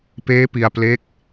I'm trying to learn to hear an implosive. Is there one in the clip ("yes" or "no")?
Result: no